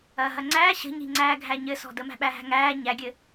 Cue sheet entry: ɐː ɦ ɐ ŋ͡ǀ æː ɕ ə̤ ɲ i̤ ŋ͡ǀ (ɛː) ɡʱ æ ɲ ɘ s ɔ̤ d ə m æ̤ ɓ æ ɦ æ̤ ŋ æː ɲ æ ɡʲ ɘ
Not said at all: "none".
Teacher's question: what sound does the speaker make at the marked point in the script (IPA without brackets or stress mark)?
æː